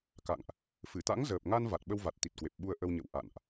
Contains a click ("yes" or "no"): no